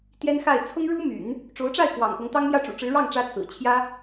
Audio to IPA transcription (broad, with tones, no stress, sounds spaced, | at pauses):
t̪ j ɛ˥ n x a˥˩ ɪ̯ t͡sʰ ʊ˥ ŋ ɻ u˥ m y̰˨˩˦ n | ʈ͡ʂ o˧˥ ʊ̯ ʈ͡ʂ a˥˩ ɪ̯ k w ɑ̰˨˩ ŋ p ʊ˧˥ ŋ t̪ ɑ˥ ŋ m j ä˥˩ ʈ͡ʂ ṵ˨˩ ʈ͡ʂ ɻ̩˧˥ ɻ ɑ˥˩ ŋ ʈ͡ʂ ä˥ t͡sʰ ɹ̩˨˩ t͡ɕʰ j ä˥